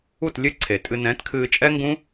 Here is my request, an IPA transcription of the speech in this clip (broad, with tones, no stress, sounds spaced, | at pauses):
u˦˨ t lʲ ɨ˦ ǀʰ e˨ tʼ ɨ˧ n ɛ̃ː˨˦ t kʰ ɨː˧ t͡ʃʼ ɛ˦ ŋ ɡ ũː˦